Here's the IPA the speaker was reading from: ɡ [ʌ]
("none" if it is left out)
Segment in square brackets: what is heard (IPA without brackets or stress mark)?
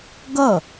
ʌ